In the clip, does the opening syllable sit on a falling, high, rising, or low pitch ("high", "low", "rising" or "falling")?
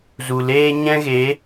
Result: low